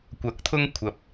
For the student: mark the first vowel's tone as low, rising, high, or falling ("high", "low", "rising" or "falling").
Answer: rising